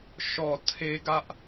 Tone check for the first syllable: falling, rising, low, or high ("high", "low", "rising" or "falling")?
low